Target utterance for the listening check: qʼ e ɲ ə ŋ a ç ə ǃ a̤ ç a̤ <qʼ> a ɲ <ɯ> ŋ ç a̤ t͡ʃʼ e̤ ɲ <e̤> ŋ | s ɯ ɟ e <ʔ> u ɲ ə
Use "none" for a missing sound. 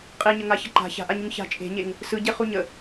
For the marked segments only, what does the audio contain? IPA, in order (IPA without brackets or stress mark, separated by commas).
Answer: ʔ, u, e, χ